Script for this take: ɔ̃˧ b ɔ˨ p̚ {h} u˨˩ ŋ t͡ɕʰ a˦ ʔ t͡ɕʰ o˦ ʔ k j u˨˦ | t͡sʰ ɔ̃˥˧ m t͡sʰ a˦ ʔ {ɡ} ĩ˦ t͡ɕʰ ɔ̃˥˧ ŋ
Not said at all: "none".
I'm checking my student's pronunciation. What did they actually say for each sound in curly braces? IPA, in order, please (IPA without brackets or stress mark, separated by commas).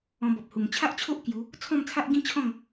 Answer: h, ɡ